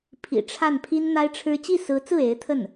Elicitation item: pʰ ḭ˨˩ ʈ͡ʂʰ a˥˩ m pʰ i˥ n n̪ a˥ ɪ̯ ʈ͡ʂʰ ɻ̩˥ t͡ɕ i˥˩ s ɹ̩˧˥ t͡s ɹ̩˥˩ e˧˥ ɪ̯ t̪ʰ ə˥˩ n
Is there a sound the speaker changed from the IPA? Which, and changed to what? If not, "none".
m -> n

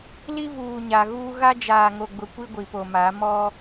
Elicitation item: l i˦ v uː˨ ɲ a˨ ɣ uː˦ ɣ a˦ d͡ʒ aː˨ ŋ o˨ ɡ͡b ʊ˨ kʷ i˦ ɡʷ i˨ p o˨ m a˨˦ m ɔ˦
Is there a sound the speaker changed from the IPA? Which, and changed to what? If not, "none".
none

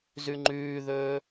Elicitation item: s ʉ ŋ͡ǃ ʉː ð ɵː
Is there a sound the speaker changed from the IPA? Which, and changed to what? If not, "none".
s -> z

